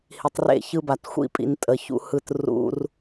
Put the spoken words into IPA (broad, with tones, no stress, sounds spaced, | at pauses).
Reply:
h i˨ tˤ r ḛ˦˨ ç ɯ˦ b a˨ t xʷ ḭ˦˨ pʼ ḭ˨ n tʼ ə˨ ç ṵ˦ h ɯ˦˨ t r ṵ˦ r